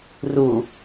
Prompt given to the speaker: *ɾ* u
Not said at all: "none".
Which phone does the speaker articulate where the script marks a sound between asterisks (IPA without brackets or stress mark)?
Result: r